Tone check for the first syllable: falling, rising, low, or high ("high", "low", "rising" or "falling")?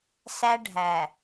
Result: high